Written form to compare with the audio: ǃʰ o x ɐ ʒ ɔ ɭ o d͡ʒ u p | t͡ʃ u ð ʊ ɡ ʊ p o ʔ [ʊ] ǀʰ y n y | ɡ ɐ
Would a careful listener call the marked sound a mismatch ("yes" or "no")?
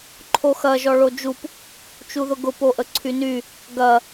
yes